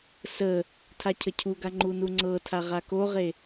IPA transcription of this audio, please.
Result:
s ə | tʰ a cʰ ə cʰ u ɡ a ŋ͡ǃ u n u ŋ͡ǀ ɤ tʰ a ʁ a k o ʁ e

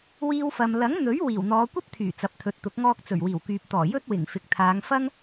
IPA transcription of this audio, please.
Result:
w iː˧ w f ɐ˨ m l ɐ˨˥ ŋ n̪ ɵ˨˥ ɥ w iː˨˩ w n̪ ɔː˨˧ kʷ ɐ˥ p̚ t̪ʰ yː˨˩ t͡s ɐ˨ p̚ t̪ʰ ɵ˨ t̚ t̪ ʊ˨˥ k̚ ŋ ɔː˧ k̚ t͡s ɵ˨˩ ɥ w iː˨˩ w k yː˨ p̚ t̪ ɔː˨˩ j ɵ˥ t̚ w ɪ˨˩ ŋ f ɪ˨ k̚ t̪ʰ aː˨˧ ŋ f ɐ˥ ŋ

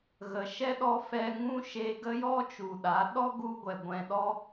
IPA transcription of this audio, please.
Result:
ɣ ə˨ ʃ ɛ˦ ɗ ɔ˧ f ɛ˧ ŋ ũ˦ ʃ e˧ ɡ ə˦ j ɔ˦ t͡ʃ u˨ ɗ a˨˦ ɗ ɔ˦ ɡ u˧ ɡʷ ɛ˨ ɡʷ ɛ̃˧ ɗ ɔ˦

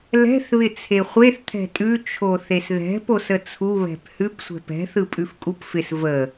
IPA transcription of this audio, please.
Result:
l ɛ̤ θ β ɪ t͡sʰ e χʷ e θ t̪ʰ ɛ̤ tʼ ʉ t͡ʃʰ o θ e s ð ɛ̤ p o s ə t͡sʰ u β ɛ̤ p h ʉ p sʷ ɛ̤ p ɛ̤ θ ɯ pʼ ʉ f kʼ u p f ɪ s v ə

